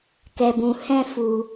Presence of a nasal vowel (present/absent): present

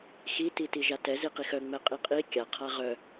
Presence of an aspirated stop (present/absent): present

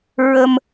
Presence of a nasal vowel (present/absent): absent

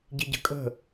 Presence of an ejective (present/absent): present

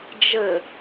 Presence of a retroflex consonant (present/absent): absent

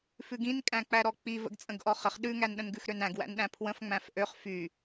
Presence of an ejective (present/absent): present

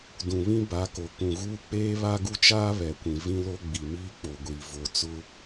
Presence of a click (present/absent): absent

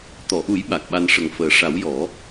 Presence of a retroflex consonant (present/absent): present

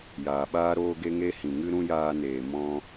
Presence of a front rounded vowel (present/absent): absent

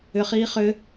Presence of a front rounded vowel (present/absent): present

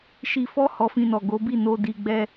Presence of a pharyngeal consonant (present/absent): absent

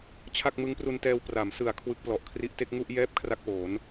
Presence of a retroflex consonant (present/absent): absent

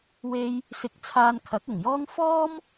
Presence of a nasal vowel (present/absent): absent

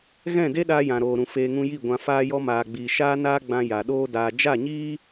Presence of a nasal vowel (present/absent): present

